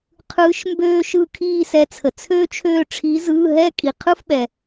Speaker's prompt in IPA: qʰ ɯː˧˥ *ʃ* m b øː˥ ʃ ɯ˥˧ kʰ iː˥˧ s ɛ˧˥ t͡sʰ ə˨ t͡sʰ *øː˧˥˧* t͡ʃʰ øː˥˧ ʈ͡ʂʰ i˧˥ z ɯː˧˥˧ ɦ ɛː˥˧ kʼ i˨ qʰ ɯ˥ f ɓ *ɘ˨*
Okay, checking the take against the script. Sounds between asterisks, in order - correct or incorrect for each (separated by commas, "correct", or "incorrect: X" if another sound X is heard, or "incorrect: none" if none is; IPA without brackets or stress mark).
correct, incorrect: øː˥, incorrect: ɛ˨